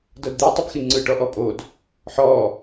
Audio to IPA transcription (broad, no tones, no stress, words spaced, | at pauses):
dɤdd̪i tˤɯbxiŋ͡ǀɯ ʈɔʔɔpʼod | ħɔ